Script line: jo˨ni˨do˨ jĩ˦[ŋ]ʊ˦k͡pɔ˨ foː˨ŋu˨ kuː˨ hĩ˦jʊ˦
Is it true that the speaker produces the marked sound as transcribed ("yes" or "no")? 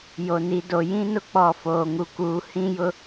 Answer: no